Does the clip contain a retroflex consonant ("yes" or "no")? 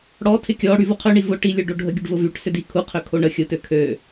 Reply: yes